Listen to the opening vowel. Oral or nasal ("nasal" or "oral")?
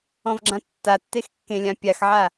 nasal